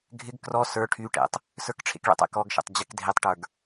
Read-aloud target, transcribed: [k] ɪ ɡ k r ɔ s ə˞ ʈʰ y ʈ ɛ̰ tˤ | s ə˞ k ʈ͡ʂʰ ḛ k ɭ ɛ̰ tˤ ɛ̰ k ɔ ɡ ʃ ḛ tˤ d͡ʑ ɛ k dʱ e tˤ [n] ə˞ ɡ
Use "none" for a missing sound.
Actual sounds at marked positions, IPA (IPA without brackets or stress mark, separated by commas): ɡʱ, ʈ